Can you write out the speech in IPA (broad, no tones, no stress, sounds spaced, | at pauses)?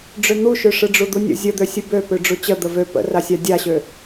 ɖ͡ʐ ø n̪ u ʃ ø ʂ ɯ ɖ͡ʐ u d̪ u nʲ ə̰ zʲ ə d̪ ø sʲ ɯ b ø p ø ɖ͡ʐ u t͡ɕ ə d̪ ə v ø p ə̰ r a sʲ a dʲ a ɕ ø